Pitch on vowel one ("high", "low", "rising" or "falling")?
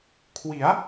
rising